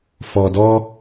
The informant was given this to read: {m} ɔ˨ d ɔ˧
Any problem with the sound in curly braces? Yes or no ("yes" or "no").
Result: yes